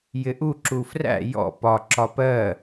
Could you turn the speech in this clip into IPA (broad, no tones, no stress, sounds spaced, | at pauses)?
j ɪ ʔ u ǁ u f r æ̰ j ɔ̰ p ɒ ǁ ɒ p ɜ